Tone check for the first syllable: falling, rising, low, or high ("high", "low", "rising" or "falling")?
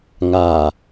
low